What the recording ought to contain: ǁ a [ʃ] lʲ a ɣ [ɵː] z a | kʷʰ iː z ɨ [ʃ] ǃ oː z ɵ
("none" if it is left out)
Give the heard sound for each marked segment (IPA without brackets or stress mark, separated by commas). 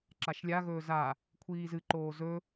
ʃ, ɵː, none